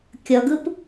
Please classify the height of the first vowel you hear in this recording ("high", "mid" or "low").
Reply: mid